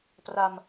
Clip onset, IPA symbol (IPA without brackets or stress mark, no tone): p